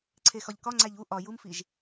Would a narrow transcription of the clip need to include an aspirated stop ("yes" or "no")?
yes